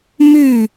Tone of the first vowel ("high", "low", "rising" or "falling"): falling